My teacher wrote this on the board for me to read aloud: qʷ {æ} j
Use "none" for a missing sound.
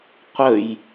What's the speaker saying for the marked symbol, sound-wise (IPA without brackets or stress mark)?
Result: ə